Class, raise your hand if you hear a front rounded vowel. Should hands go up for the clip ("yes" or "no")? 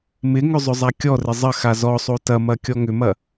yes